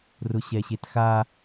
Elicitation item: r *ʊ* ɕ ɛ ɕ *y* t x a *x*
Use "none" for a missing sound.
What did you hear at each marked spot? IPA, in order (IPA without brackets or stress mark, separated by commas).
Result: ʊ, e, none